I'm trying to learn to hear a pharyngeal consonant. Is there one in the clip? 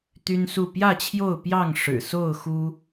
no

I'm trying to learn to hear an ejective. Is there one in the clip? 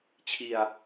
no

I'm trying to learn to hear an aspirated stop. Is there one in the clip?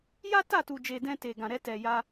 no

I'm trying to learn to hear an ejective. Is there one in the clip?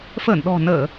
no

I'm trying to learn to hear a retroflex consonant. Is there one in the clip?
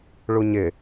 yes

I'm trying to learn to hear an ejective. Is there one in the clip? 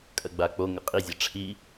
yes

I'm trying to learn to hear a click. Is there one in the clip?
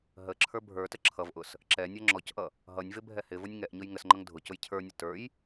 yes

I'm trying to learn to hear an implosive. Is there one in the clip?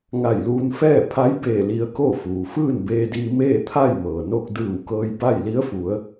no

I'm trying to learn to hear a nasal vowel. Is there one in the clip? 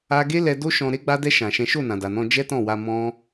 yes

